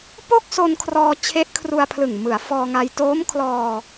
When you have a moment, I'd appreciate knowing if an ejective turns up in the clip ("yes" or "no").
no